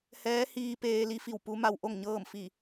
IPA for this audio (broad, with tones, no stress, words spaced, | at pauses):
hɛː˧˥hiː˧ peː˧li˧˥fi˧˩w pu˧˥ma˧wʔo˥˨ŋɲɤː˥˨m fi˧˩